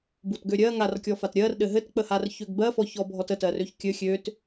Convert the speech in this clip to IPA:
butɡøɾʲɜ ŋarkʲɔfat ɾʲɜr ɗɘɦɘtk͡pəhar çøɡbɜfɔçɔ bʱɔtətɜrøç kʲɘ xʲøt

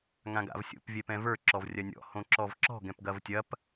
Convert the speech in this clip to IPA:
ŋãɡa̰vsʲo̰p vʲɛpɛ̃və˞ ǁɔvrʲɐnʲɔ̰ hõǁɔvǁɔ̤ ɡɛ̃pɡɐvtʲɐp

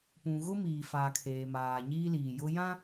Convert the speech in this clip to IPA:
pũ˨ɣʊ˦ miː˨faː˨kʰeː˨maː˨ ɲiː˦liː˨jʊ˦ jã˦

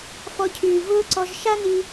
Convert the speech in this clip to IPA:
fɔ˧cʰyː˨ vʊː˦ǀɔ˧ʒ ʃa˦ni˧

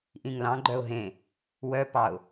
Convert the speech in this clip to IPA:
ʔĩŋlɑ̃ɡ͡ǃœʊ̯ ɦẽ | wœ pɑʊ̯

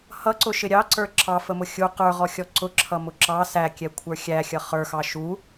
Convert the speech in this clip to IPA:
hʌǀʊʃɪ ɾʲɑǀə˞ ǁʰɑfəmʊ xʲu qə˞ʁɔxʲɔ ǀʊǁʰʌmʊ ǁɑ sækʲɛkʷʰə˞ xʲæxʲʌ χə˞xɑ ʃu

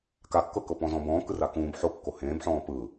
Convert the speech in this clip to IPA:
kakːɤkɤ pɔ̃zɔ̃bɔ̃ː kɯrakũːb ħo kːohẽːbħɔ̃ː pɯ

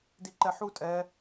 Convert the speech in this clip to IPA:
diǃɛħu tʼɛ

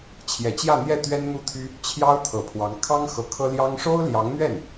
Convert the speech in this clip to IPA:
t͡ɕʰjɛ˨˩t͡ɕjä˥˧n̪jɛ˥˩ t̪ɥɛ˥nn̪u˥˩t̪ʰy˥ | t͡ɕʰjɑ˥ʊ̯t̪ʰɤ˨˩pʰwɑ˧˥ŋ kʰɑ˥ŋ xɤ˧˥kʰɤ˥ljɑ˥ŋ ʂo˥ʊ̯ljɑ˧˥ŋn̪ɥɛ˥˩n

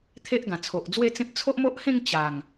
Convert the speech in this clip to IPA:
t̪ʰe˦ʔɡã˨˩t͡sʰo˨ʔd͡zwe˥˧ t͡sẽ˦p̚ t͡sʰo˦ʔmo˦ʔhẽ˥˧ŋ t͡ɕa˨˩ŋ

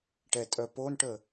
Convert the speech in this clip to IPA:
ʈɛtʼœponʈə

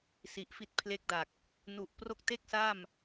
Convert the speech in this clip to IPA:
si˨˩ʔfi˦˥t̚pʰle˦˥k̚da˨˩k̚ | nu˨˩ʔpro˦˥k̚te˥˩k̚sa˥˩m

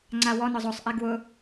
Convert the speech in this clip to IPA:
ŋ͡ǀawɔnʊ zˤosˤʔɛ ɡwʊ

